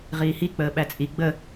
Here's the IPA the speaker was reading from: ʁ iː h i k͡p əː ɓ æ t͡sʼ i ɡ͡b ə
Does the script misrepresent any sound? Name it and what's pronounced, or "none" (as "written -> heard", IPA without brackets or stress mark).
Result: none